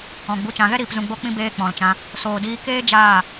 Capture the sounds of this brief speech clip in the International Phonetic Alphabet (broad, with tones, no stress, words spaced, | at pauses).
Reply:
ɔ̃˨ ɡ͡bu˨t͡ʃã˨ɣɛ˦ɾiː˨p zũ˨ɡ͡bo˧k͡pĩ˧ beː˦k͡pɔ̃˨lt͡ʃã˧ | soː˨diː˧keː˦ d͡ʒaː˦˨